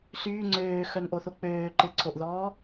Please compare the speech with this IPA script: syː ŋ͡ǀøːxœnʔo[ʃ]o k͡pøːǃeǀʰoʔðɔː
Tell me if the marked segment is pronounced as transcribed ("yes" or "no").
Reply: no